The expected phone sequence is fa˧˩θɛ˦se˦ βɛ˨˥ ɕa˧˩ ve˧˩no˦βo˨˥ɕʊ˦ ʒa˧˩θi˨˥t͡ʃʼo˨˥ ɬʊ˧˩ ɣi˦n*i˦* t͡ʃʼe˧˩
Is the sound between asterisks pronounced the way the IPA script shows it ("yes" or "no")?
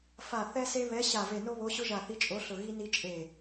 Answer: yes